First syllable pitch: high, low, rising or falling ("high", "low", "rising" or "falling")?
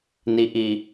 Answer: low